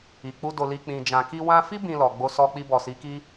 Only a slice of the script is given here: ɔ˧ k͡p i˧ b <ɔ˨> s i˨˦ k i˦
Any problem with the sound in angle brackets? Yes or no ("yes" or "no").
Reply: no